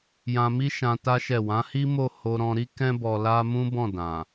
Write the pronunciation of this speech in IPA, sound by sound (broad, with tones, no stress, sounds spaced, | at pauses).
j ã˧ m i˦ ʃ ã˧ t a˦ ʃ ɛ˦˨ w ã˨˦ h i˦ m o˦˨ h o˧ ɾ ɔ̃˧ ɾ i˦ k ɛ̃˦ b ɔ˧ l a˦ m ũ˦ b ɔ̃˦˨ d ã˨